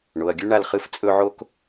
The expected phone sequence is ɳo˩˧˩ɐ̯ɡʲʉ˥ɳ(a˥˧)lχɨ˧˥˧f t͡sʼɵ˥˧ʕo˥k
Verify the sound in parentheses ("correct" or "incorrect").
correct